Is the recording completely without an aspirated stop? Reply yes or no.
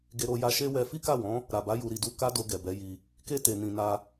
yes